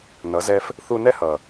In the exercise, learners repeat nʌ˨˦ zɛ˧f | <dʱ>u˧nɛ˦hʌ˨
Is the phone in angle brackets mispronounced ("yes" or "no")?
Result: yes